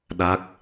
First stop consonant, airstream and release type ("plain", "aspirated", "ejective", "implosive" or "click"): implosive